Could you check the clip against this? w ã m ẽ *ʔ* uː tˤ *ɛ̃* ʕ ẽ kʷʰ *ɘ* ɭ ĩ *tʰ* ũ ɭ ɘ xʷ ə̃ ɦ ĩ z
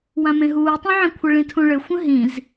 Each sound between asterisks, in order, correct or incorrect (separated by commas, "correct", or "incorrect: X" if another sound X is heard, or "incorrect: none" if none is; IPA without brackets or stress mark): incorrect: ɦ, incorrect: ẽ, correct, correct